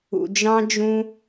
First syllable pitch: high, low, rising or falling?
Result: low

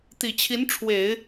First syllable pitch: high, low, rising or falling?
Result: low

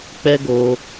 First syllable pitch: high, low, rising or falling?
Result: high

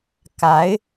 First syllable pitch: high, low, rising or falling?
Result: rising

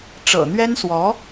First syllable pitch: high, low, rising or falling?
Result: low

